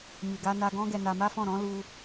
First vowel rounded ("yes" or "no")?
no